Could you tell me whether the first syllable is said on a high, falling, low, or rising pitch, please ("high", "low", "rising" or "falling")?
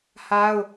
high